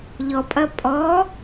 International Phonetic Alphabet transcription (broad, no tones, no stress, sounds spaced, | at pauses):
ʎ ɔ pʼ ɐ pʼ ɔ